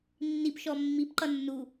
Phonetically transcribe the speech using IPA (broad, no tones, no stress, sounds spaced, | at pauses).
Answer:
nː i p ʃ ɔ mː i p ǃ ʌ nː u